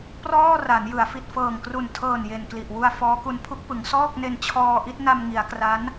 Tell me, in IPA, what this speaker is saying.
p r ɔː˥˩ r a˩˦ n j ɯ˩˦ a̯ f i˨˩ t̚ f ɤː˨˩ ŋ k r u˨˩ n tʰ ɤː˨˩ n j e˨˩ n k l i˨˩ ʔ w u˧ a̯ f ɔː˦˥ k u˦˥ n pʰ u˦˥ k̚ p ɯ˩˦ ŋ s ɔː˥˩ k̚ n e˧ n t͡ɕʰ ɔː˧ ʔ i˥˩ t̚ n a˧ m ŋ i˩˦ a̯ k r a˦˥ n

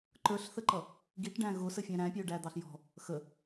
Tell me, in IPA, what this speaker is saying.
ǃ ə˞ ɬ θ ə ǃ ʌ | ɡ i ʈ ɖ æ̃ ɣ ʊ s ə fʲ æ̃ ɾ æ̃ pʲ ʊː ɖ æ d̪ ɑ ɬ j ɔ̤ | x ə

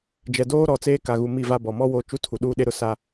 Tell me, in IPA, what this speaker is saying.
d͡ʒ ɛ˨ d oː˦ ɾ ɔ˨ t͡s eː˦ k a˨ ɣ u˨ m i˦˨ v a˦ b ɔ˨ m ɔ˦ w oː˦ t͡ʃ u˦ tʰ u˨ ɗ uː˦ ɗ e˦ ɾ ʊ˦ s a˦

